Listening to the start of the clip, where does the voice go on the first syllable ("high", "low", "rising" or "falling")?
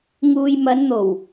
low